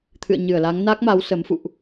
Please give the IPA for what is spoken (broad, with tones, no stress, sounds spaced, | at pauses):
t̪ʰ ɨ̰˧˨ ə̯ ɲ ɨ˧˩ ə̯ l a˨˦ ŋ n a˦˥ k̚ m a˨˦ w s ə˨˦ m f ṵ˧˨ ʔ